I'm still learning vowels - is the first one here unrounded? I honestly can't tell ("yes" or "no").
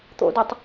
no